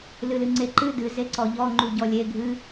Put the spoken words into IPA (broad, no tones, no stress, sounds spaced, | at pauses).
l ɨ l ɨ ŋ͡ǀ e ǃ ɨ d ɨ z e ǀ ɔ ʎ ɔ ŋ͡ǃ u ɟ ɔ lʲ e ɡʱ ɨ